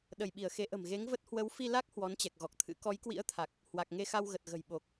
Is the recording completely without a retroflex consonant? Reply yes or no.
yes